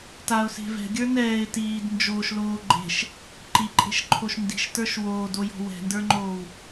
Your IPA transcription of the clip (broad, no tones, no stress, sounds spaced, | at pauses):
t a ʊ̯ s e̤ v ɛ̤ ɡʲ ə˞ n ɛː ɪ̯ t iː d n d͡ʒ oː ʃ l oː ɡ͡ǃ e̤ ʃ | ǃ i ǃʼ e̤ ʃ ǃʰ o ʃ n d i̤ ʃ t ə˞ ʃ w oː d o j ɔ̤ w ɛ̤ n d ə˞ ŋ͡ǃ oː w